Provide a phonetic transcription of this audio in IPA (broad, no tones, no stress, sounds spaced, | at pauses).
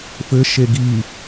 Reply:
f ɘ ʃ e ɡ i